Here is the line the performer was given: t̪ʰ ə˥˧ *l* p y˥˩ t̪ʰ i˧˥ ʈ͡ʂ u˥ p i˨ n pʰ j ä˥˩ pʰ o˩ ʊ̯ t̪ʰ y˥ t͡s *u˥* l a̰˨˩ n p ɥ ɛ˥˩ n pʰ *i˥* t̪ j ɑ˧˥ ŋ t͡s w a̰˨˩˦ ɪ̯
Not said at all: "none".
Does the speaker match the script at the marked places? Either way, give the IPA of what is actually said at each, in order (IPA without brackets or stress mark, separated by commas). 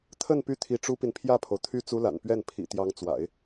n, u˥, ḭ˨˩